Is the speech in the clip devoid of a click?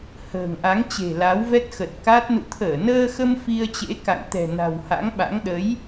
yes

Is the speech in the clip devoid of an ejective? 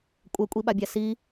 no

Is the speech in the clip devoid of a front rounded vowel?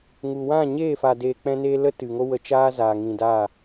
yes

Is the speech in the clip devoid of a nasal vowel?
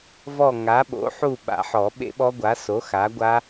yes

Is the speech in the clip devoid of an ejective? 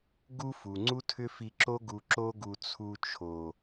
yes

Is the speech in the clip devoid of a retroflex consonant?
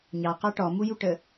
no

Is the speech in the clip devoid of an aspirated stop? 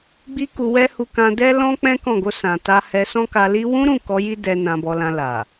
yes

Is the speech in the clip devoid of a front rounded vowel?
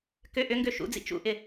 no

